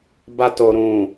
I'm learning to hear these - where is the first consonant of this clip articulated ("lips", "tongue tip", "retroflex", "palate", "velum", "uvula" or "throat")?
lips